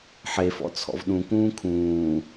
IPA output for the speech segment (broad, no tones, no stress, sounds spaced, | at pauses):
ħ e f ɔ̰ t͡sʰ ɔ̰ v ɗ ũ k ũː kʰ ũː